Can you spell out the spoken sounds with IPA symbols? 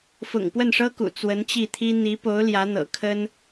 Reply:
f ʊ̰˨˩ ŋ p w ə˥˩ n ʂ ɤ˥ k ṵ˨˩ t͡s w ə˧˥ n t͡ɕ i˥˩ t̪ʰ i˥ n̪ i˧˥ p o˧˥ ʊ̯ l j ä˧˥ n̪ ɤ̰˨˩ kʰ ə˥ n

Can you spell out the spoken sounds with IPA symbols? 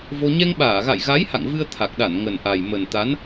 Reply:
v o˧ ɲ ɛ˧ ŋ ɓ aː˧˩ ɣ a̰˧˨ j ɣ a˨˦ j h a̰˧˨ ŋ v ɨ˧ ə̯ t̪ʰ a˨˩ k̚ ɗ a˧˩ n ŋ ə˨˩ n ʔ a˨˩ j m ə˨˩ n t̪ a˨˦ n

